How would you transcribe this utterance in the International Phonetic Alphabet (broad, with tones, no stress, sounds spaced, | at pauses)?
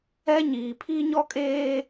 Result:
ɛ˦ ɲ iː˨ pʰ iː˦ ɲ ɔ˦ kʼ eː˦